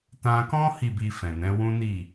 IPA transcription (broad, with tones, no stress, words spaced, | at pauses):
tã˧kɔ̃˦ hi˦˨bi˧ fɛ̃˨nɛ̃˨˦wũ˦ni˦˨